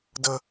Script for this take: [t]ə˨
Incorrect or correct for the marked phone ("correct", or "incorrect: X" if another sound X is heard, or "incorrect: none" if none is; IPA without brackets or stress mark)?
incorrect: d